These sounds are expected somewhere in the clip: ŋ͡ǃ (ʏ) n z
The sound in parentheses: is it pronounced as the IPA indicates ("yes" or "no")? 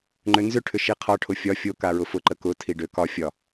yes